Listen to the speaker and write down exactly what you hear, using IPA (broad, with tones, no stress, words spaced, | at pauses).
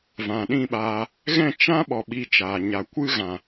vã˨ɗĩ˦˨ɓaː˧ | ɣɛ̃˦˨t͡ʃã˦ ɓɔ˧ɓi˧t͡ʃaː˨ ɲa˨kʷɨ˦ɣã˨